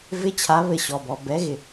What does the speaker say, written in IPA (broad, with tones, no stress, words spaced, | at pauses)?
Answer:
vɪ˦˥t͡ɕʰa˨˥ βɘ˧˩ ɕɔ˩bɔ˩ bɛ˨˥ɣɪ˩